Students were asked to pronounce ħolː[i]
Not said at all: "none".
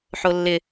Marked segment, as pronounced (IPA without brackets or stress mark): ɪ